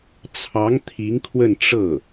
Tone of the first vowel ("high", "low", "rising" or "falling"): rising